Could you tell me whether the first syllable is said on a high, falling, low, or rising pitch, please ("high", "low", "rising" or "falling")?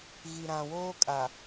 low